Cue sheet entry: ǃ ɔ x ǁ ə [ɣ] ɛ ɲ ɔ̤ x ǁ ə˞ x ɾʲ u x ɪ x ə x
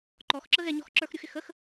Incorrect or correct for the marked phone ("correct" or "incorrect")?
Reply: correct